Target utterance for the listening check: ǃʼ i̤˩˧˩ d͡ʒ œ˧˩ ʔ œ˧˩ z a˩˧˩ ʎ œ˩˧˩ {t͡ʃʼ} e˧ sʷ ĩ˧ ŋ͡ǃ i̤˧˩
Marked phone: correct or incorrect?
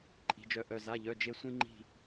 incorrect